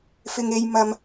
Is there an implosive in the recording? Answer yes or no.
no